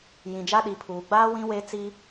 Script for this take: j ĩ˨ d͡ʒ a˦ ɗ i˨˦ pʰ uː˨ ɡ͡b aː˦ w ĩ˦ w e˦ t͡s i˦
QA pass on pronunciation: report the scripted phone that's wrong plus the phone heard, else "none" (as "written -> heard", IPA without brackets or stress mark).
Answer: none